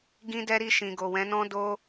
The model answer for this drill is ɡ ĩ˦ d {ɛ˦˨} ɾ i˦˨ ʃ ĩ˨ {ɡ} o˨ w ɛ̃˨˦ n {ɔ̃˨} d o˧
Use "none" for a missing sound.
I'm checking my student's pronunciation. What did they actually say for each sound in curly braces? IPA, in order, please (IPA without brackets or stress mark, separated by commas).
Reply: ɛ˦, ɡ, ɔ̃˦